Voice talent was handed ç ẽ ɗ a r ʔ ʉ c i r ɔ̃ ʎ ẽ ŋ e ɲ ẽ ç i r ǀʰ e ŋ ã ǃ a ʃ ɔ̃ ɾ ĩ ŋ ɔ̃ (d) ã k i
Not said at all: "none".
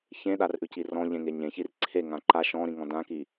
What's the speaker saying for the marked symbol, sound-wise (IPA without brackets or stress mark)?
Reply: d